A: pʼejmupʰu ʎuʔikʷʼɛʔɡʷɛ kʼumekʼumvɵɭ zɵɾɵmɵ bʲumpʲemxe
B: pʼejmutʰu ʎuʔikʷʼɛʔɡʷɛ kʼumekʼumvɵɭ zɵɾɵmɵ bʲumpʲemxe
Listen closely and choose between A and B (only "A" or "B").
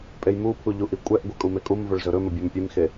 A